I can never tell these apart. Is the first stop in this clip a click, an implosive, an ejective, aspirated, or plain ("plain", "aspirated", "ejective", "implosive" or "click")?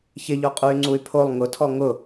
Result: ejective